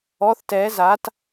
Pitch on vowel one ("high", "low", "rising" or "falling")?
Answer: rising